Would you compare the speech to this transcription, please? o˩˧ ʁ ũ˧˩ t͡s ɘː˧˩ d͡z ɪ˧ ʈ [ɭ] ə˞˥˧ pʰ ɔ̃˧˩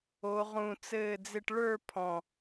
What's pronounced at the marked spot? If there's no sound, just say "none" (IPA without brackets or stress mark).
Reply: ɭ